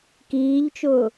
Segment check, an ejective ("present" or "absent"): absent